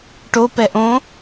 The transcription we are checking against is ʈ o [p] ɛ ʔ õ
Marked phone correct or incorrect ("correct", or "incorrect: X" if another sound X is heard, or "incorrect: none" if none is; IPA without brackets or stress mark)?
correct